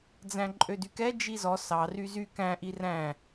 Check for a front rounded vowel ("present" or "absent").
present